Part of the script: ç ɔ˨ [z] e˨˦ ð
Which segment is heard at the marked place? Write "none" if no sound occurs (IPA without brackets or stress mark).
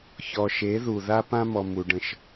ʃ